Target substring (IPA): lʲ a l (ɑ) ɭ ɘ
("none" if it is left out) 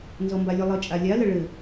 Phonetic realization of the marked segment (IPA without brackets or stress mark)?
ə